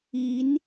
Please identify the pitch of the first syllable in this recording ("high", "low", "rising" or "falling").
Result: rising